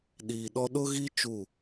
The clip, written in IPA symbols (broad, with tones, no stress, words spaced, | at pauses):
ɗiː˨ ɗɔ˦ ɗʊ˦ɣi˦ t͡ʃu˦˨